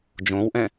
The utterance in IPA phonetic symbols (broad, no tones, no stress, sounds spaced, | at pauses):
d͡ʒ õ w ʔ ɛ̃